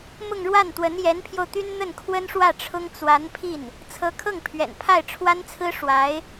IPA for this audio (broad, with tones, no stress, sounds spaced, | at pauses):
m ʊ˥˧ ŋ ɻ w a˥˩ n t̪ w ə˧˥ n j ɛ˧˥ n pʰ j o˧ ʊ̯ t̪ y˥ n n̪ ə˥˩ n kʰ w ə˥ n ʂ w ä˥˩ ʈ͡ʂʰ ʊ˥ ŋ t͡s w a˧˥ n pʰ i˥˩ n | t͡sʰ ɤ˧˥ kʰ ɤ˥˩ ŋ pʰ ɥ ɛ̰˨˩ n pʰ a˥˩ ɪ̯ ʈ͡ʂʰ w a˥ n t͡sʰ ɹ̩˥ ʂ w a˧˥ ɪ̯